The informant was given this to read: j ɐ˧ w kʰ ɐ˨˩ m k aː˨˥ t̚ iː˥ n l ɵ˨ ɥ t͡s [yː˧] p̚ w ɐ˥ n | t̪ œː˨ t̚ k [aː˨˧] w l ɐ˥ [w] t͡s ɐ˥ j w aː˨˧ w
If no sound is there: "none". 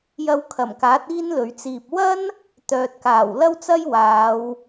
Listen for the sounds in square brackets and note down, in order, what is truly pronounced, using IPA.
iː˧, aː˨˩, w

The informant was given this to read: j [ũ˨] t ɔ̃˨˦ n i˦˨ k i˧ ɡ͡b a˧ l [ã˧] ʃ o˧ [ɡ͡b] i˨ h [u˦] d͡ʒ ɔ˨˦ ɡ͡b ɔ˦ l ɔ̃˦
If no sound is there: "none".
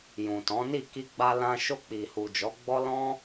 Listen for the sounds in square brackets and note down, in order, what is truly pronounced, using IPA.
ũ˨, ã˧, k͡p, u˨

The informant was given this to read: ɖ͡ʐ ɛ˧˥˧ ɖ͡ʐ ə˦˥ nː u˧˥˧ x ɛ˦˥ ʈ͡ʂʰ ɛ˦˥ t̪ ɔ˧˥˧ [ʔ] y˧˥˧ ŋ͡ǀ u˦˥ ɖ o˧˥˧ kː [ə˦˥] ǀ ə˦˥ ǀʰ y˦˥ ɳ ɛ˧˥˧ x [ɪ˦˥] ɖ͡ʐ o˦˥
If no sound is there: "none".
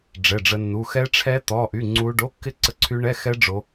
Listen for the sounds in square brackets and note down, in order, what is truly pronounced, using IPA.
ʔ, ɪ˦˥, ɛ˦˥

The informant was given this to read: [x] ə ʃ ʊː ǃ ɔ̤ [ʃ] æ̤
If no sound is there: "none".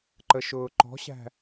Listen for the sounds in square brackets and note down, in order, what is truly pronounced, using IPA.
ǃ, ɕ

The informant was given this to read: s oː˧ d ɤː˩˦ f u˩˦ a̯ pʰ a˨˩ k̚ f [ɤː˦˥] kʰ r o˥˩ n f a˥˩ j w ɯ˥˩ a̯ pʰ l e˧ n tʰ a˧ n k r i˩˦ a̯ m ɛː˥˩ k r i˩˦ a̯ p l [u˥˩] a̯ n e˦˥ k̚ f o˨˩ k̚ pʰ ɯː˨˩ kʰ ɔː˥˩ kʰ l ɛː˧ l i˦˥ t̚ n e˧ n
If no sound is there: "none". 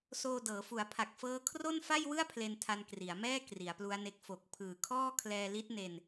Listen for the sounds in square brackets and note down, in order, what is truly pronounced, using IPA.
ɤː˦˥, u˦˥

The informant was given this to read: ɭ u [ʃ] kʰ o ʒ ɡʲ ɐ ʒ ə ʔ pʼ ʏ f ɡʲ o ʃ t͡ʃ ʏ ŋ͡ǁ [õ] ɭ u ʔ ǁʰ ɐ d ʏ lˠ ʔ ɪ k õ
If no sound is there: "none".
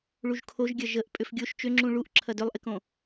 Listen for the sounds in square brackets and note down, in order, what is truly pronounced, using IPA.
ʒ, ũ

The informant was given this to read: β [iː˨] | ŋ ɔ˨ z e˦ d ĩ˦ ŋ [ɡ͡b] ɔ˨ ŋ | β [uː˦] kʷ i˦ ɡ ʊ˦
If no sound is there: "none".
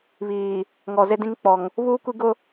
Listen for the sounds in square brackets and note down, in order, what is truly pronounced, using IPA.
iː˨, k͡p, uː˦

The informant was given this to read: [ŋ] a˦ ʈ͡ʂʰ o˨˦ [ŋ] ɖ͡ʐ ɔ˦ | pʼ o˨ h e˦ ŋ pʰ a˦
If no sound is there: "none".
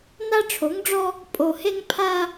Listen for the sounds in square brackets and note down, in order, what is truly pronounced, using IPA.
n, ŋ

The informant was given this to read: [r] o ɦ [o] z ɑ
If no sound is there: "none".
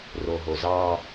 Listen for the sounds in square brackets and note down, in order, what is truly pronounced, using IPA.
r, o

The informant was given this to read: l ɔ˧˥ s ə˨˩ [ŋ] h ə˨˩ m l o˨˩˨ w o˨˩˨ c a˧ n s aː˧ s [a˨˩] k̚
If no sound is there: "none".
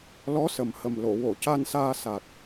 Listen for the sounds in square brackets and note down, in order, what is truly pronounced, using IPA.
m, a˨˩

